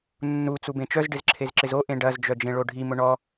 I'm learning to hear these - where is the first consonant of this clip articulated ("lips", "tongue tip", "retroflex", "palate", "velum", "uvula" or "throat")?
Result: tongue tip